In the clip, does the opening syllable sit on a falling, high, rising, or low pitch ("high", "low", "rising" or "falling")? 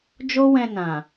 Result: high